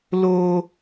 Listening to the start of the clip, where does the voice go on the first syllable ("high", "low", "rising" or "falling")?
high